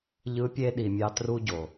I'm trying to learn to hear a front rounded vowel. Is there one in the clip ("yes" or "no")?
no